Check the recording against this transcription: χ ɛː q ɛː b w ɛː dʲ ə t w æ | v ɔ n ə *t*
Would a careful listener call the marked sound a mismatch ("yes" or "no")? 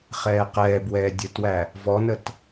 no